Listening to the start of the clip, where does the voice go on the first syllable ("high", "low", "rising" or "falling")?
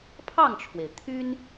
falling